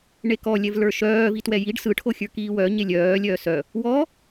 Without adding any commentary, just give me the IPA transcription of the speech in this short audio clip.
ɳ e k ɔ lʲ ɛ v l ə˞ ʃ œː v i t w ɛ j i ɖ s ɯ ʈʰ o xʲ ə˞ k iː w œ ɲ e lʲ œː lʲ œː s œ | w ɔ

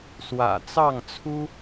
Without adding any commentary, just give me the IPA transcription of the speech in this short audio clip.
s w ä̰˨˩ t͡s ɑ˥˨ ŋ t͡sʰ u˦

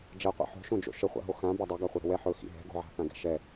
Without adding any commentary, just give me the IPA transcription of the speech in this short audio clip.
d͡ʒ ɛ qʷ ḭ ħ o̤ ʃ õ d͡ʒ o̰ ʃ ə χʷ a̰ ɦ o x ã b a dˤ ɵ ɡ a χʷ ɤ ɾ ə̤ w ɛ ħ ɵ x ḭ ɦ ɛ̤ ɡ o̤ ʕ a̤ θ ã ɡ ɛ̤ ʃ ɛ

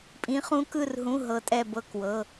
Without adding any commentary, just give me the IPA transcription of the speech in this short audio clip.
pʼ ĩ˦˥ χ ũ˦˥ k ɯ˥˧ r ɦ ũ˧˥˧ ɦ ɤ˦˥ tʼ ɛ˥˧ b ɤ˥˧ k w ɤ˧˥˧

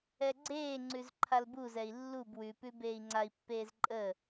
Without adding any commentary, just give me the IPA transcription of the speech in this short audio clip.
ɛ ɡ͡ǀ eː ŋ͡ǀ ʉ z ǃʰ a l b u z ɛ i̯ lː u b w ʉ p ʉ b eː i̯ ŋ͡ǀ a i̯ pː eː z ǃʼ ə

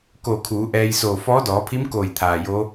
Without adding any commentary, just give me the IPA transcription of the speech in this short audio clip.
k o˧˩ kʰ uː˩˧ ʔ ɛː˧ j s oː˧˩ f ɔː˧˥ d ɔː˩˧ pʰ i˧˥ m k oː˧˩ j t̪ʰ aː˩ j o˧˥

